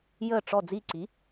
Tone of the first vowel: falling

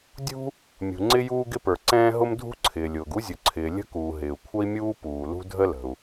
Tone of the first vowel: high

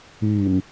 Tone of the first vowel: low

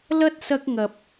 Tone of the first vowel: high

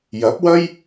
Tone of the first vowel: rising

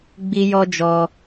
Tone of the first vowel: high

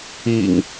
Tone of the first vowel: low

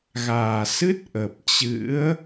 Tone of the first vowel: low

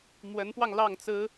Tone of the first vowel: rising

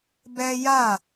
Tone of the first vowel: high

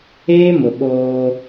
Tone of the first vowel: high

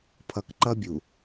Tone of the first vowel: low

